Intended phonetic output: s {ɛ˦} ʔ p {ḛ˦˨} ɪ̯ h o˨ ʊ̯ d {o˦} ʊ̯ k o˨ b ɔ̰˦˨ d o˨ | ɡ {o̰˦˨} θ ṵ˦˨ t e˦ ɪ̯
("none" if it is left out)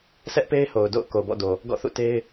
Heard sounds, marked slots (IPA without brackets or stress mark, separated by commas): ɛ˦, e˦, o̰˦˨, ɔ̰˦˨